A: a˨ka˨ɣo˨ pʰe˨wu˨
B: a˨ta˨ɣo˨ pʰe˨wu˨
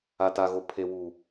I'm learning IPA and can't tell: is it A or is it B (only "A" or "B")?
B